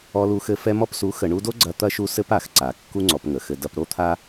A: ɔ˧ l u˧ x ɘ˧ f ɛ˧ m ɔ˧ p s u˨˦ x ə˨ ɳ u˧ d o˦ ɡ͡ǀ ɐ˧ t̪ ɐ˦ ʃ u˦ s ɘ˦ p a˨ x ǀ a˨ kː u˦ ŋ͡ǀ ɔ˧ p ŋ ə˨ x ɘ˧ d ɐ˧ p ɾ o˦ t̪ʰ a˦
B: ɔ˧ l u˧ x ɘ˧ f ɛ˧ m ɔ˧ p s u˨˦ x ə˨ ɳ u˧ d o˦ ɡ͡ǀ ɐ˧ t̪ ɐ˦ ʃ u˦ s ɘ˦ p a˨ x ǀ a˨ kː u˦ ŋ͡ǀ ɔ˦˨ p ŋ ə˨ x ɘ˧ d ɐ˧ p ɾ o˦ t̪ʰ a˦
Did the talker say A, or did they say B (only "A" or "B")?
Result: A